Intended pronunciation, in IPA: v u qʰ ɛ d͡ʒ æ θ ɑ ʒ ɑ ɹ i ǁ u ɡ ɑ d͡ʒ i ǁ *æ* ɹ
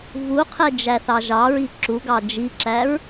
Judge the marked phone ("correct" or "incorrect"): correct